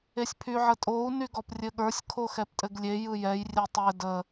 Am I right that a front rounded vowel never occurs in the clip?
no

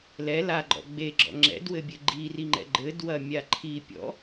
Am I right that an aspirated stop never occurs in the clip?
no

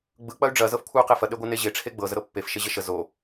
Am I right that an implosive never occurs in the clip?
no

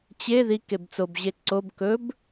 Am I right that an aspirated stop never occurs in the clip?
yes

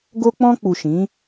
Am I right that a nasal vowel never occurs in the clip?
no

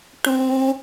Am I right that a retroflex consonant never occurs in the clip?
no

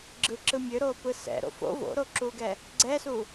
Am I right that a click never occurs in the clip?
no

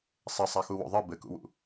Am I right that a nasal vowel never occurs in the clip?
yes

